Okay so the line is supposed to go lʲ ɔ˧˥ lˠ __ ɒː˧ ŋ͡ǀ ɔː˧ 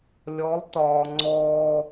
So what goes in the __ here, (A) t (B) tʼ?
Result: A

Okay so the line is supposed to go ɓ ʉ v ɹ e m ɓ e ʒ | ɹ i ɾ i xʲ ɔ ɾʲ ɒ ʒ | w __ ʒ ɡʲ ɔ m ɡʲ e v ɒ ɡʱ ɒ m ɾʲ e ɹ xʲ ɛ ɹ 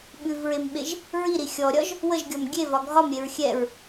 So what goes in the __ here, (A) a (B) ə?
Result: B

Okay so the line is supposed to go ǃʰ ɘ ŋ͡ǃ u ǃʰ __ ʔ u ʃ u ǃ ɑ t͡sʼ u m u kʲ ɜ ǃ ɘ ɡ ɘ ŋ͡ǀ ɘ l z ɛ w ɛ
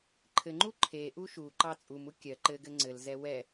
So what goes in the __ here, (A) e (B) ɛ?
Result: A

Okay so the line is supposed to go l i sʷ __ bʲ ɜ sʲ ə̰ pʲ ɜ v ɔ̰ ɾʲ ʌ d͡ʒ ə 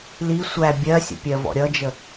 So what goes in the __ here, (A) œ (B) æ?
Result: B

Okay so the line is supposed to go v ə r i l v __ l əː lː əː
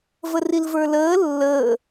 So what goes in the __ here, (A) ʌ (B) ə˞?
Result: B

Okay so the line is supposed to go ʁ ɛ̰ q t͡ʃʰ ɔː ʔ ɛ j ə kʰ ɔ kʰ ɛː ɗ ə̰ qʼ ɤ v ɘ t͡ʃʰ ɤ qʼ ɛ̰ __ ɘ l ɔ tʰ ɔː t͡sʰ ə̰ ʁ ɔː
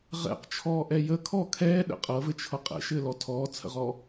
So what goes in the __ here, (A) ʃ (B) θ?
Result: A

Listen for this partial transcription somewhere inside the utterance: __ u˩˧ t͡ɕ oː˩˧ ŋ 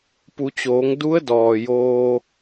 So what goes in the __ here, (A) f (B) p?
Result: B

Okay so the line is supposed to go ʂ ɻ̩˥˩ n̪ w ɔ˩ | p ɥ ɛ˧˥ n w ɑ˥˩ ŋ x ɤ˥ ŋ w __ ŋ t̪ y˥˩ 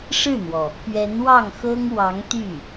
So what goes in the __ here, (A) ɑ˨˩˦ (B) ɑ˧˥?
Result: B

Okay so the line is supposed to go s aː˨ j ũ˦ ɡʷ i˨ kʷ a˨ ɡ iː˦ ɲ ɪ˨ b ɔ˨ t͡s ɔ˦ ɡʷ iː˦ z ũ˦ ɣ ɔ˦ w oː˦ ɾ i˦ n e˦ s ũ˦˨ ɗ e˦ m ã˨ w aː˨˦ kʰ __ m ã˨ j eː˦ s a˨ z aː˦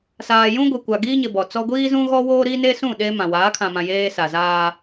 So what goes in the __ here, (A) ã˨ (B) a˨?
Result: A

